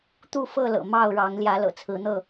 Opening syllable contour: falling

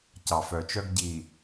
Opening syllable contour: low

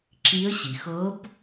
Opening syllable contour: rising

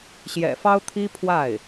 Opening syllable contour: low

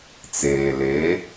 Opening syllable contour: low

